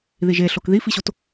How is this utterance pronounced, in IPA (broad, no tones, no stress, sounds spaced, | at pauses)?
ð i ʒ e ɬ o k ð i f i ɕ o t